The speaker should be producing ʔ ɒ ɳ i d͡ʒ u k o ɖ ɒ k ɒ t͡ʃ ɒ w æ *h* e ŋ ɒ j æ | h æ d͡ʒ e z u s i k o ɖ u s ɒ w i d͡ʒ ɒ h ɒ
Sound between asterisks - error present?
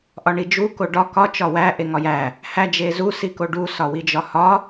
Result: yes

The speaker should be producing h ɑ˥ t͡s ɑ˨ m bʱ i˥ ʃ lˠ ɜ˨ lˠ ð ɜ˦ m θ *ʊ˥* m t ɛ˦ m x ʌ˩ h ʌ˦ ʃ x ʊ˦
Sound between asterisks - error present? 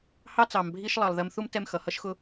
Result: yes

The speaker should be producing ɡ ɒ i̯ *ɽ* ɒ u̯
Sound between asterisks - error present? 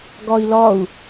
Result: yes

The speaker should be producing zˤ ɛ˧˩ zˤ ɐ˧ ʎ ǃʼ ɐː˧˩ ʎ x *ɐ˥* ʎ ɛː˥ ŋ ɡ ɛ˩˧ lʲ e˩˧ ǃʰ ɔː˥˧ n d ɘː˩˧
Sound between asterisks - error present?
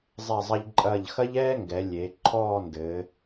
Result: no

